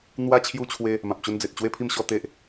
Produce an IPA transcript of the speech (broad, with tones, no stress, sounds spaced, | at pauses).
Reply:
n̪ w a˦ t͡ɕʰ j u˦ t͡ɕʰ w e˦ | m ã˨ p̚ t͡ɕ u˧ n d͡z e˨ t̚ t͡ɕ w e˥˧ pʰ i˥˧ m ɕ ɔ˥˧ t̪ e˦ ʔ